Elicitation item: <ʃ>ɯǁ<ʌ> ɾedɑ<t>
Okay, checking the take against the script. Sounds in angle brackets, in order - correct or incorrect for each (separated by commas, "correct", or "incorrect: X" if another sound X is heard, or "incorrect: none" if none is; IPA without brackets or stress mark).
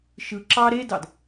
correct, incorrect: ɑ, incorrect: d